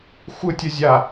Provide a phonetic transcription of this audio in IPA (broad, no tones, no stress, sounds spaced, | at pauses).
xʷ ɯ tʲ ə zʲ a